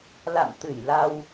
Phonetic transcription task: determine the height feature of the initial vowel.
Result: low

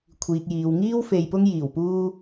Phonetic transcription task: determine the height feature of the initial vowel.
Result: high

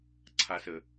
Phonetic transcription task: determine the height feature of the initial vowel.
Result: low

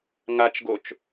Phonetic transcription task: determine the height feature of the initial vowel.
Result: low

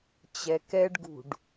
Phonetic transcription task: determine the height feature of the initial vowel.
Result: mid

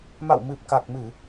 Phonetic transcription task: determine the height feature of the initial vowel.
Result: low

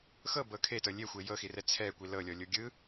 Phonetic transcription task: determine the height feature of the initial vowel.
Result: mid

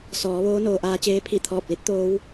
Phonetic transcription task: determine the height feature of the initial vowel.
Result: mid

